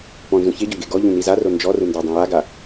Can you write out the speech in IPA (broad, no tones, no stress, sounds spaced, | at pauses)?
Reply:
p ɔ̃ n z ũ ç e ɟ ɔ ɡ e ɡ ɔ ʎ ũ n i z a r o n d͡ʒ ɔ r ɯ n d a dˤ ẽ j a ɡ a